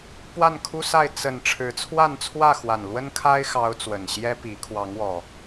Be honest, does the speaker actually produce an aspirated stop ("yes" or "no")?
yes